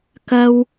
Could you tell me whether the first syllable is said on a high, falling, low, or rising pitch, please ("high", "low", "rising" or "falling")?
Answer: high